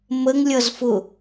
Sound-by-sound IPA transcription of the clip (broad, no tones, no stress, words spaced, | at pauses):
məŋ lʲʌzfʊ